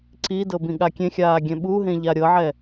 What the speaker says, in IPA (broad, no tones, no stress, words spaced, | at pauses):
ǀidɤ bĩɠakʲẽxʲaː ɡʲɛ̃ɓuɦẽ ʎaɾʲɤʕɛ